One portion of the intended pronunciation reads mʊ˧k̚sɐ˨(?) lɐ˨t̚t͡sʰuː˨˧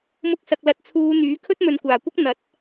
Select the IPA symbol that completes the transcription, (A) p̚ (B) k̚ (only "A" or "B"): B